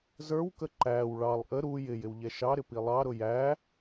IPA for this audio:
zə˞wkə ǃæw ɭɑlˠ ʔə ɾu jɪ jɪwʎɛʃɑɾɪ pilˠɑɾʊ jæ

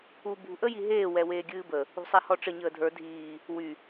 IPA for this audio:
u bṳʔə jiɦeː wɛweːɡʲɨːbə | ṳsˤɛhɔʈ͡ʂə ɲəːdʱə˞ dʱiː | wy

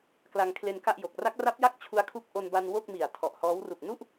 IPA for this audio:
kla˧ŋkʰle˧nka˥˩ʔjo˨˩k̚ ra˦˥k̚ra˦˥p̚ ja˥˩k̚t͡ɕʰu˧a̯ kʰu˦˥k̚ ʔo˧n ba˧n wo˥˩k̚mi˨˩a̯tʰɔ˨˩ʔhɔː˦˥w ru˨˩k̚nu˥˩ʔ

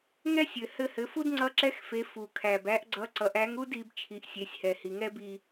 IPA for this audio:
ŋɛ˥sʲɘ˩hɘ˧hɘ˩˧ fu˥dŋ͡ǀʌ˧˥ǁɛ˧˥xfe˩˧ fu˩kʰæ˩b æ˧˥ʔɡ͡ǀʌ˧˥ ǀʌ˩˧ʔæ˧˥ŋ u˥di˩˧b t͡ʃʰi˩˧ʔsʲe˩˧sʲhɛ˩ hi˩ŋɛ˥bi˧

